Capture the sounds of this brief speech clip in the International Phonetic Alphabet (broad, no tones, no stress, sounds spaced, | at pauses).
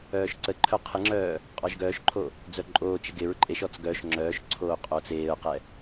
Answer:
œː ʃ ǀ ə ǃʰ œ qʰ ɪ ŋ͡ǁ œː | qʼ ɔ ʒ ɡ œː ʃ ǃʰ o | d͡z œ ǃʼ oː t͡ʃ ɪ ɡ ɪ ɹ ǃʼ e ʃ ɔ t͡s ɡ œ ʃ ŋ͡ǁ œː ʃ ǀʰ oː qʼ oː t͡s eː ʊ̯ q ɛ